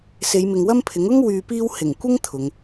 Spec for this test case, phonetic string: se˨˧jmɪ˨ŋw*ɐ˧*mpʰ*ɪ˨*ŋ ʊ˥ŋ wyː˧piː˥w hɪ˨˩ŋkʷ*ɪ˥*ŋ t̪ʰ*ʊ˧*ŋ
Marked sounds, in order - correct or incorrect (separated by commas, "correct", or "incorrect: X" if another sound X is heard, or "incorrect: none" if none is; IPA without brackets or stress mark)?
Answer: incorrect: ɐ˥, incorrect: ɪ˨˥, correct, incorrect: ʊ˨˧